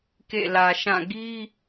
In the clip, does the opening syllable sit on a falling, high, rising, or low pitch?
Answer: falling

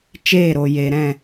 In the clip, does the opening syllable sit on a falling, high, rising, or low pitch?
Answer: falling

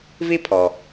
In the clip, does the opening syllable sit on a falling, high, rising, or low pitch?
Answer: high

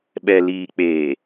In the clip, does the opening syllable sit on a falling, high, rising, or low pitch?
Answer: low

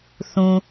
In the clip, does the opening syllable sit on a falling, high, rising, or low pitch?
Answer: low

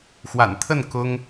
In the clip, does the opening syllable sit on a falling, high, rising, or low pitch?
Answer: low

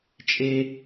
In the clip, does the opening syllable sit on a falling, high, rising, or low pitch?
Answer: high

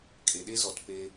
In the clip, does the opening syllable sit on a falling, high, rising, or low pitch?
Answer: low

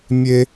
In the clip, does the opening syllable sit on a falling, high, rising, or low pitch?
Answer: high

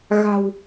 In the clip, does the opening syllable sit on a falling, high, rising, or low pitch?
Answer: low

